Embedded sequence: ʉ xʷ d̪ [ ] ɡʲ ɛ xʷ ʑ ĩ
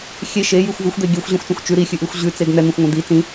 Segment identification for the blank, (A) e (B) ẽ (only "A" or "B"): A